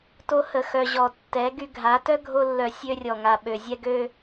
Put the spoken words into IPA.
to˧hə˨xœ˨ ʑɔ˨ tːɛ˨˦ɡy˧ ɡʱa˨˦ tœ˦ɡʱo˧lːœ˨ sʲø˧rʲɔ˨ŋa˨ ɓø˨zʲɛ˧ɡø˧

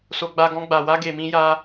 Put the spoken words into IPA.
so˧ɡ͡ba˧ ɡɔ̃˧ɡ͡ba˨wa˧ ɡe˨mĩ˧ja˧

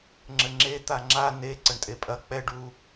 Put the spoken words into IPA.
ŋ͡ǁɘŋ͡ǁe t̪aŋ͡ǁa ne ǀɐɳtʼepʼɐ k͡pɛɖ u

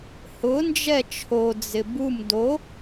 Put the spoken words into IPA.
hʊ nd͡ʒɛt͡ʃʰo d͡zɪbum do

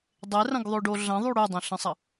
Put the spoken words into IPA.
dˤerɐ̃ɡðˤoɖo ɮɐ̃ðˤy ɽydˤə̃ɬə̃sˤɐ

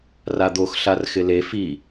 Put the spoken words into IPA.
rad̪oxɬar xɪle fi

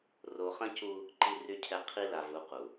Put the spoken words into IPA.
ro˨χə̃˦cu˦ | ǃi˨ry˨cʰɛ˨ qʰi˦la˨ vu˨˦qu˨

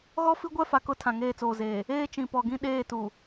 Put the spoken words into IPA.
ɣɔ˦fi˦ɡʷɛ˦ fa˨kʊ˦˨ tʰã˨ŋeː˦˨t͡soː˨zeː˨ | eː˦ t͡ʃĩ˨pɔ˨ɡĩ˦ ɗeː˦˨tu˨

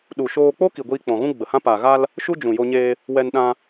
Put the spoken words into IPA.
ɗu˨ ʃoː˧k͡po˦ ki˨ɡʷiː˧k͡pɔ̃˨ɣũ˦ ɡ͡bə˨hã˦ pa˨ɣa˧l | ʃu˦d͡ʒũ˨ jo˧ɲeː˧ | wɛ˧nɗã˧

